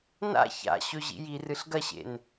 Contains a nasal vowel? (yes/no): no